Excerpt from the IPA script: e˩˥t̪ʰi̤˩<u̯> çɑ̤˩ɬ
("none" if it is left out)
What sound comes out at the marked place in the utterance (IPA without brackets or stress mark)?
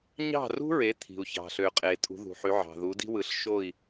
u̯